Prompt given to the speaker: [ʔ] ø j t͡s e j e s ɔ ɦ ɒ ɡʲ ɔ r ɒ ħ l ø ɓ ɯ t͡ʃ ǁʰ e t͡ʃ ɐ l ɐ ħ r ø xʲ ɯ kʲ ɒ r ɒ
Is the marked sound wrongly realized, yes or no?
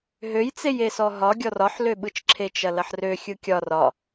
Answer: yes